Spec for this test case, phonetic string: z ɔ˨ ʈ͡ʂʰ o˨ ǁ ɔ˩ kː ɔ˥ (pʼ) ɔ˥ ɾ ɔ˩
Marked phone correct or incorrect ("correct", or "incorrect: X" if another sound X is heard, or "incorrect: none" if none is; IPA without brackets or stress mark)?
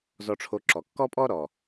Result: correct